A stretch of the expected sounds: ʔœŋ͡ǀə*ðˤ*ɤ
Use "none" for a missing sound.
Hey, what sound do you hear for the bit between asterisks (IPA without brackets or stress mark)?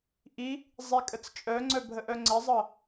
zˤ